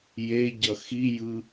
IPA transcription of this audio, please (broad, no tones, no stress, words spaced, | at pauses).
jeɟʌ xijɯ